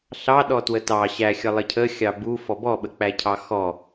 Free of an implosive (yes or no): no